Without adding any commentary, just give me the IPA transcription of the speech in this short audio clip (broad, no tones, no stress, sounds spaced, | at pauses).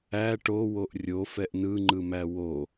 æ ʈ o w o ʔ rʲ o f ɛ ʔ n ɯ ŋ͡ǃ ɯ m æ w o